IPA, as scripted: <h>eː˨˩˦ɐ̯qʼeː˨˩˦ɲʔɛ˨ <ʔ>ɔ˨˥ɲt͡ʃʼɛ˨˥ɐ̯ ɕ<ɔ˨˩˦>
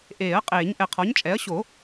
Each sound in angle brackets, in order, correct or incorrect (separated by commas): incorrect, incorrect, incorrect